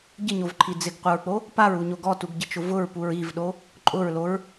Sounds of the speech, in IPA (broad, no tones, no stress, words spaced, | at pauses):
ɟɪɲovǃʰi d͡zɪɡqʷɪɹk͡po | paɹuɲo ɡɔtuɡɟɪt͡ʃʊ vʊɹpuɹ ivɗo | ǃʼʊɹloɹ